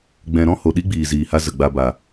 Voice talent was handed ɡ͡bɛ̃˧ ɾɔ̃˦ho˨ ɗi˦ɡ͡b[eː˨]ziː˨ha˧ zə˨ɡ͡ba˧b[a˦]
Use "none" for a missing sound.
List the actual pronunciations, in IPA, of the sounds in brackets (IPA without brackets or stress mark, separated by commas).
iː˨, a˨